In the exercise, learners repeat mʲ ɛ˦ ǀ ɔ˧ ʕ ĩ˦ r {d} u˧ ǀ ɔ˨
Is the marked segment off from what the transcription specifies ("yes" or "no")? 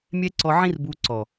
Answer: yes